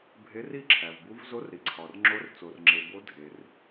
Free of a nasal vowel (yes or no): yes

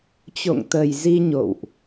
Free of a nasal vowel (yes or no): yes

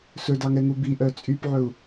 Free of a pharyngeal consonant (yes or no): no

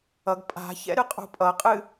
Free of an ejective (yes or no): no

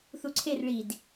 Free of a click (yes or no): no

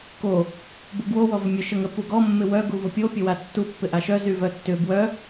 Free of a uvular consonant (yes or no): yes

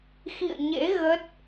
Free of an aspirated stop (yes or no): yes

